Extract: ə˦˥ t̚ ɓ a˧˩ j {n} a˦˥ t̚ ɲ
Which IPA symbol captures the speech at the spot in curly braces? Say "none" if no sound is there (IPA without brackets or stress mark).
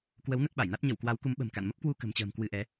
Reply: n